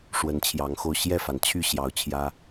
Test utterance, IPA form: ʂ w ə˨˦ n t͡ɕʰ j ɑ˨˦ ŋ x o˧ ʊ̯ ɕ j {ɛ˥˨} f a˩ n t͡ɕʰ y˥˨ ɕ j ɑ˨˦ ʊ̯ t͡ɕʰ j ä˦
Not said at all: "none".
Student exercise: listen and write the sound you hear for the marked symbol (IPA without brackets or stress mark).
ɛ˥˨